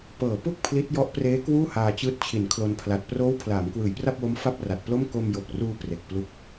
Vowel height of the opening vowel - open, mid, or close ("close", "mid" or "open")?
mid